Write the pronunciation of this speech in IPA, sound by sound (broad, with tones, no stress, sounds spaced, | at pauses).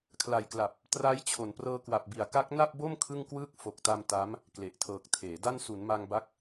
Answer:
kʰ l a˨˩ j k l a˨˩ p̚ | t r a˦˥ j t͡ɕʰ o˩˦ n p r ɤː˧ k w a˨˩ p̚ b i˨˩ a̯ k a˦˥ k̚ n a˥˩ p̚ b o˥˩ m kʰ ɯ˥˩ ŋ k w ɯː˥˩ k̚ f o˨˩ k̚ t a˧ m t a˦˥ m | k l e˨˩ ʔ tʰ ɤː˨˩ k̚ tʰ eː˩˦ d a˥˩ n s u˩˦ n m a˧ ŋ b a˦˥ k̚